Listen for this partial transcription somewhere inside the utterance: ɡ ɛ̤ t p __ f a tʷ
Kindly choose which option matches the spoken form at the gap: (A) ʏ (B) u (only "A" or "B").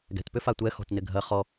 A